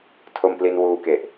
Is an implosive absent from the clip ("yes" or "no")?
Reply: yes